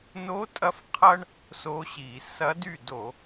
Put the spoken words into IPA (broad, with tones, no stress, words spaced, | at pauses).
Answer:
no˧˥tʼɐ˧˥f qʰɐ˥ɳ | so˧˥ɕi˧˩˧ sɐ˧˥dy˥˩do˧˩˧